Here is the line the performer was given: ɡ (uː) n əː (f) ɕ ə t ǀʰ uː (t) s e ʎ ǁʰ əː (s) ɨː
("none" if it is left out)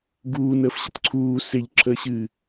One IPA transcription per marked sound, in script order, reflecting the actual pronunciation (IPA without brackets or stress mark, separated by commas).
uː, f, none, ɕ